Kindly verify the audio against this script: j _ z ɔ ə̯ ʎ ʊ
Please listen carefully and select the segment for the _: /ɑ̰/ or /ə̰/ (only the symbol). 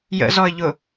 ə̰